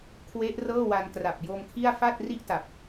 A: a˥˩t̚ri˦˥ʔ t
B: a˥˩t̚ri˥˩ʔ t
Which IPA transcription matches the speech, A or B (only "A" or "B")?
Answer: B